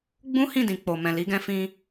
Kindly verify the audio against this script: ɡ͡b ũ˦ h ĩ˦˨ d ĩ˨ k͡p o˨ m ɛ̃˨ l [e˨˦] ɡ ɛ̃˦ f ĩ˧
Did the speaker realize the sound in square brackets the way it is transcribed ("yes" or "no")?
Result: no